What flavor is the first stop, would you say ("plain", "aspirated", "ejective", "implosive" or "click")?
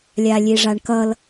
plain